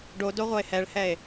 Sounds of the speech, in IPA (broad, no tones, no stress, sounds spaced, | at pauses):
ɖ o d o ʁʷ ʌ e̯ h ɛ ɭ h ɛ e̯